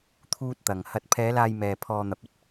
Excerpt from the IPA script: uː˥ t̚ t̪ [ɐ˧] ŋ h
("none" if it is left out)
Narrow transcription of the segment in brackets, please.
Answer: ɐ˨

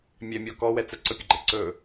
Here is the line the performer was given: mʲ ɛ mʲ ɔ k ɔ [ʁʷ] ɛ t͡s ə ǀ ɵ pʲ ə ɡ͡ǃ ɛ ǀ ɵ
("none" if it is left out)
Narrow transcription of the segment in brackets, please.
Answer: w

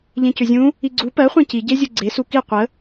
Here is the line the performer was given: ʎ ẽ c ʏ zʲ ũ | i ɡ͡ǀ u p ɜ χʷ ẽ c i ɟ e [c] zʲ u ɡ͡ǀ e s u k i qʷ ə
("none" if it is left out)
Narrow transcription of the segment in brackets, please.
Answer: none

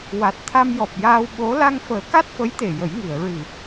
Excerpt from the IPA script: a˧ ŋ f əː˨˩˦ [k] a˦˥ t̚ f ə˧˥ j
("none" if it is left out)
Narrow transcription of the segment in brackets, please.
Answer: k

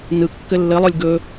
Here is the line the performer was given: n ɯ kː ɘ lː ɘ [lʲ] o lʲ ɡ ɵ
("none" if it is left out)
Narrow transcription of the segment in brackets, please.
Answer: lˠ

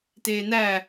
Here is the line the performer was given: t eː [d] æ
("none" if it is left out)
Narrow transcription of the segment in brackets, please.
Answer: n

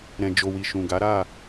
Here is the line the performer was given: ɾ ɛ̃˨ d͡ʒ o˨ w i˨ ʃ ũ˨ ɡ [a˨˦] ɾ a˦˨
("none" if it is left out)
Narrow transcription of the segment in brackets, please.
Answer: a˨˦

